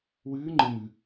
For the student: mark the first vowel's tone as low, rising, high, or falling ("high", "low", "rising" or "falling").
rising